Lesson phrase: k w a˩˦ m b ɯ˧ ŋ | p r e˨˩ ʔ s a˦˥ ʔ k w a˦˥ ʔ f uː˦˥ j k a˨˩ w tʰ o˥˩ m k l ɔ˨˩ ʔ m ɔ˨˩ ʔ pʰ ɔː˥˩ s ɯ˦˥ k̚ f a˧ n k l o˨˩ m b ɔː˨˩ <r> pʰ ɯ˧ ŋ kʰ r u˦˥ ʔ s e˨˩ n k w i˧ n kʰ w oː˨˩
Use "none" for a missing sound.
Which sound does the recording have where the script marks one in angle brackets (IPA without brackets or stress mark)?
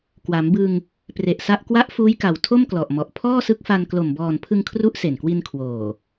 n